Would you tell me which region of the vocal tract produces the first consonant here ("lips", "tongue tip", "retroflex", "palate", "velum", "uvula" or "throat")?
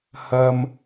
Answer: throat